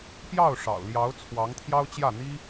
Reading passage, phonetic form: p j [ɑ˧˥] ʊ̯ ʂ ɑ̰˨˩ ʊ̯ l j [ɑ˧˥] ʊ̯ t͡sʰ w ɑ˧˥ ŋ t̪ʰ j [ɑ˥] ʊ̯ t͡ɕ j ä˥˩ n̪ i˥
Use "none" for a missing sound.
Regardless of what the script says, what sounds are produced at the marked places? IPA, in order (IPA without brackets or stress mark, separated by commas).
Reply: ɑ˥˩, ɑ˧˥, ɑ˥